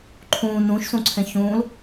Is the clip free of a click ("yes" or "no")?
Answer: no